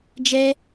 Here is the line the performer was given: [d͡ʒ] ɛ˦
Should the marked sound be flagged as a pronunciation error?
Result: no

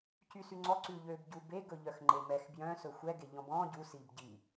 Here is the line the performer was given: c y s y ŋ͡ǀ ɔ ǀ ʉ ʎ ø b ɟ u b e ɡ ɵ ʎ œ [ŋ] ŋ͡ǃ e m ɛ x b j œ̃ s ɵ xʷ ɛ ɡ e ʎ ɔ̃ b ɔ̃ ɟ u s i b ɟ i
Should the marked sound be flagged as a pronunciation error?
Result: yes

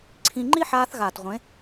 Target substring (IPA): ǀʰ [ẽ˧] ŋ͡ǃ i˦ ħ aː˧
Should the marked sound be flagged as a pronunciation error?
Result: yes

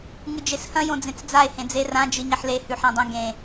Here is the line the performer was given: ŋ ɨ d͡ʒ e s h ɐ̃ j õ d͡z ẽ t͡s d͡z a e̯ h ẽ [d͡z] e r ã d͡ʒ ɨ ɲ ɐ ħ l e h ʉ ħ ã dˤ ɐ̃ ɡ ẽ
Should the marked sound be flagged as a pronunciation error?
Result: no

